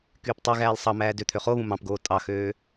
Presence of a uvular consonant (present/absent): present